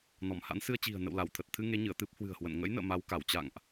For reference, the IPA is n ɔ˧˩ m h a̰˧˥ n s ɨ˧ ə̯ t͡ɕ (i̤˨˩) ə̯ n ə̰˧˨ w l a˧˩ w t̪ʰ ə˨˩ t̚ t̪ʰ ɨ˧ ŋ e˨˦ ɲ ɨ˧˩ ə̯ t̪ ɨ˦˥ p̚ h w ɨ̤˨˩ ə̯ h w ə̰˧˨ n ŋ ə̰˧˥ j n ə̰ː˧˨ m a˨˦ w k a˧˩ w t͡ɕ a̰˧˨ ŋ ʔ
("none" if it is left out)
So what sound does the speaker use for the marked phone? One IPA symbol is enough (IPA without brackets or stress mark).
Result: i̤˨˩